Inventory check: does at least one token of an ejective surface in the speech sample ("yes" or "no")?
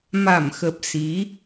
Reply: no